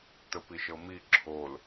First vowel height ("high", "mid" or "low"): mid